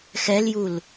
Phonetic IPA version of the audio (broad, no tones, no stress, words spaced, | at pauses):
xɛljul